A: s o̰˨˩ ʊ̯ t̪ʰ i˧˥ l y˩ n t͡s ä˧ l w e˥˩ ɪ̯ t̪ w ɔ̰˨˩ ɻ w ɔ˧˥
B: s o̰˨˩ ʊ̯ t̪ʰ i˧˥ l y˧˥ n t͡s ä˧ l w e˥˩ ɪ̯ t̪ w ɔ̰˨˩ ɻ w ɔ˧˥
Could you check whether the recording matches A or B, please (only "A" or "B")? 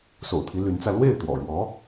B